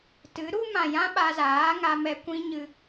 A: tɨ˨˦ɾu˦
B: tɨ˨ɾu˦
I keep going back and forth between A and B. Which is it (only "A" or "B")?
A